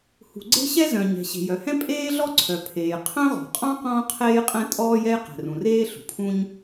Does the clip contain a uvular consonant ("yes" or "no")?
yes